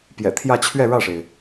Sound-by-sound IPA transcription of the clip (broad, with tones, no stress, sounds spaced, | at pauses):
p j ɛ̰˨˩ t̪ʰ j ä˥˧ t͡ɕʰ ɥ ɛ˥˧ ɻ ä˥˩ ʂ e˩ ɪ̯